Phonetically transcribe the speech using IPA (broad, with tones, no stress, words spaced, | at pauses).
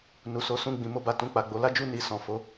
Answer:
nu˨so˨˦sũ˦˨ ɡ͡bĩ˨mo˧ba˨ tũ˧k͡pa˨ɡ͡bo˨˦ la˦d͡ʒu˦˨ ni˧ sɔ̃˨fo˨˦